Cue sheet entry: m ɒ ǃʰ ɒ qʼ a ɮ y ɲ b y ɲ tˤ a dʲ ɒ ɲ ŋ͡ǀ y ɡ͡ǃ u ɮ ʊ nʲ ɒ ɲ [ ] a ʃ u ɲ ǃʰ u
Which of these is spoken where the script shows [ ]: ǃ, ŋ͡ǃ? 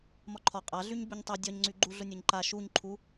ǃ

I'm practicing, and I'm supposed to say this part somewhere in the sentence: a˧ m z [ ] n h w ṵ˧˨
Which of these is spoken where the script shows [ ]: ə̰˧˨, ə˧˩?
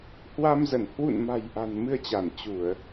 ə˧˩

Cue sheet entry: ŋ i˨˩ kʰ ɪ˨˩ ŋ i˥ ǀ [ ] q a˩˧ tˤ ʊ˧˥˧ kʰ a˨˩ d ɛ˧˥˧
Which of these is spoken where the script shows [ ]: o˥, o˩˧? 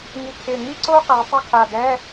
o˥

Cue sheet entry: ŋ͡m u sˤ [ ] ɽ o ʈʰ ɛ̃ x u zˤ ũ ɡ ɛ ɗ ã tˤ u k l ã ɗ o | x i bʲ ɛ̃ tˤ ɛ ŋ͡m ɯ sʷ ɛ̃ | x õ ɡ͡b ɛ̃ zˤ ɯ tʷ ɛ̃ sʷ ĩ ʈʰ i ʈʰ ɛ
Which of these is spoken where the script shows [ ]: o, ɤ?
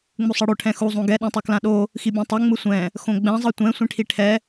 ɤ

